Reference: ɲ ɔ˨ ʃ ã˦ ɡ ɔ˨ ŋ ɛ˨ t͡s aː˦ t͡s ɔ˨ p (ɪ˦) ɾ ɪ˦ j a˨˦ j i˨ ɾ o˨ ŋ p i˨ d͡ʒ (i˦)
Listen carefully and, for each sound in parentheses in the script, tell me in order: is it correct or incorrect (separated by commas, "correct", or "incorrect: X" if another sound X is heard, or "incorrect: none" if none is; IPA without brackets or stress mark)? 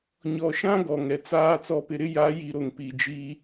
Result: incorrect: ɪ˨, correct